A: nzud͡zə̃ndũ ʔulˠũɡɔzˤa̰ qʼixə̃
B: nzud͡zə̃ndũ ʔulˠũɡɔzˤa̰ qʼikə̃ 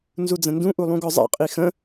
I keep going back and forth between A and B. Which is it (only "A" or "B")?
A